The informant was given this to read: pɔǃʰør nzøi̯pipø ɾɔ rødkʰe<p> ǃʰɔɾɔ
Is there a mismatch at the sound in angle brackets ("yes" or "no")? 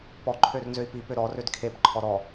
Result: no